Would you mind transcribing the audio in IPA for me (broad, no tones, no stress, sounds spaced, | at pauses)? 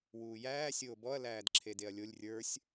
w uː j æː sʲ oː b ɔ ɐ̯ l æː d ǁʰ e d e ɐ̯ lʲ o lʲ rʲ ə˞ sʲ